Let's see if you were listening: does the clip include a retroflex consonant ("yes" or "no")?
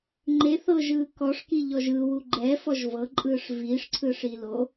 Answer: yes